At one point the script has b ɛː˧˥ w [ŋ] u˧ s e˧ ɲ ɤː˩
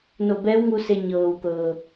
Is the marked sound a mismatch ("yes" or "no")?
no